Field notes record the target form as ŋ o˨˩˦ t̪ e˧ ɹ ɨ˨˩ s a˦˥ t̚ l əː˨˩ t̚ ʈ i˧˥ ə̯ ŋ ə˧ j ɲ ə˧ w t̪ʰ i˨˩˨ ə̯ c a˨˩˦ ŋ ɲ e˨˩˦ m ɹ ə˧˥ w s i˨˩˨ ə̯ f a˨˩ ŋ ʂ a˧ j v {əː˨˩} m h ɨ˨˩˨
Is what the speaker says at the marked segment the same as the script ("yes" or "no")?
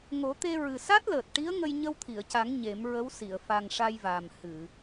no